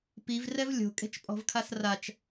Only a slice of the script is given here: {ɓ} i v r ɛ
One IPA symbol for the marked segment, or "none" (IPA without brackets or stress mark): p